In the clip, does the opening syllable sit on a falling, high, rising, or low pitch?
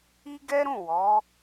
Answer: high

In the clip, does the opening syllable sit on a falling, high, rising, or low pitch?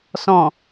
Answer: low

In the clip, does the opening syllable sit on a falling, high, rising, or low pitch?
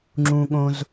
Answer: low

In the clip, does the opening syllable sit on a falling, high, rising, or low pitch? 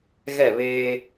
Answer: falling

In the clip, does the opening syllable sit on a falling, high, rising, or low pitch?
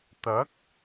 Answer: rising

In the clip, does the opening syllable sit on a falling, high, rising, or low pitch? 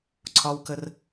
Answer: high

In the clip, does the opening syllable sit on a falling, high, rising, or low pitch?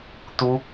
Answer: high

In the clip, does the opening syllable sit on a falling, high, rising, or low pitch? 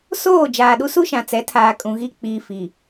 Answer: falling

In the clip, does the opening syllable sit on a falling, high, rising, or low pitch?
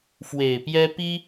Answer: low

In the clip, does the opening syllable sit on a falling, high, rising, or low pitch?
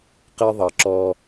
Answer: high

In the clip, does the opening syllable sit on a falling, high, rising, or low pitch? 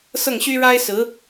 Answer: falling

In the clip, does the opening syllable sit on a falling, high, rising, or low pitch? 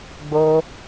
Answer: high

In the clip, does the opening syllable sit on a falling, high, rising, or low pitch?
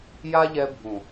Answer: high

